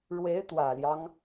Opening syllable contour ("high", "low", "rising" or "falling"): rising